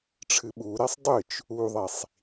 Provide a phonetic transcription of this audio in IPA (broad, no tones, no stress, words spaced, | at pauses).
ʈ͡ʂʰɨɓuɾesˤ dˤɨt͡ʃ | uðˤisˤ